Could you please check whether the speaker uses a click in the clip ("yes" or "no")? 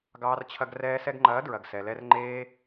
yes